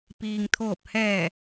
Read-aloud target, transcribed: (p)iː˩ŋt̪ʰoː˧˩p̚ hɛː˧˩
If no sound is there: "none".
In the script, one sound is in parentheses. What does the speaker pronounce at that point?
p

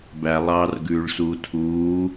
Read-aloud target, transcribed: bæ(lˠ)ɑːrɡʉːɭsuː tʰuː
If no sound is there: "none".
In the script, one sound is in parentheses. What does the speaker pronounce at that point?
lˠ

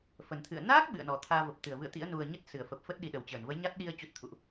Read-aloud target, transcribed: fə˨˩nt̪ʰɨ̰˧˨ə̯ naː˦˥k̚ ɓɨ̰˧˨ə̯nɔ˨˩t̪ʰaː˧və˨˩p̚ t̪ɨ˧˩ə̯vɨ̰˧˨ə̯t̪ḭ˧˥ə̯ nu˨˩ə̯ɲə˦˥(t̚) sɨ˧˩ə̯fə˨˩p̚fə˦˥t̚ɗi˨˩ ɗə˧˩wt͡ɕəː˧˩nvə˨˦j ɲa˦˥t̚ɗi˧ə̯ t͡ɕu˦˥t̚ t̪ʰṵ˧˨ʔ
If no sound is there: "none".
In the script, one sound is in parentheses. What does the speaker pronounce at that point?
t̚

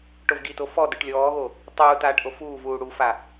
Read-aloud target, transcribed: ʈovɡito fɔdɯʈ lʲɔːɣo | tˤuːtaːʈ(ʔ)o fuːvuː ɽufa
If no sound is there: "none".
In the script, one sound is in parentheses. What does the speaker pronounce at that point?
ʔ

